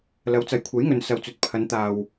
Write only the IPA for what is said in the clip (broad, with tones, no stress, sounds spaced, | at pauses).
l ɐ˨˧ w t͡s ɐ˨ j kʷʰ ɐ˨˥ j ŋ ɵ˨ n s ɐ˨ w t͡s ɵ˨ t̚ pʰ ɐ˨˧ n t̪ aː˨ w